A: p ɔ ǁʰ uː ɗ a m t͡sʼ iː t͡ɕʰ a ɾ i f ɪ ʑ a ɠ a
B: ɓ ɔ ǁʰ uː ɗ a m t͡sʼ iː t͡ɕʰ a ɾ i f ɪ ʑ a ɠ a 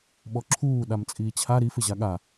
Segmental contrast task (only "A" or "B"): B